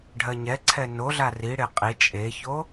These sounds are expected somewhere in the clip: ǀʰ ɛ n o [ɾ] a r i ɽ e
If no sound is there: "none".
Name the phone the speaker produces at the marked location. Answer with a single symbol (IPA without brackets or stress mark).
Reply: ɮ